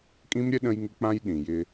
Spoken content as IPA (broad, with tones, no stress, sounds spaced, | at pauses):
kʼ ĩ˦ m ɾʲ ə˦ ɗ ə̃˦ j ŋ ɪ˦ k͡p ã˦ j ɗ ĩ˨ j ɪ˦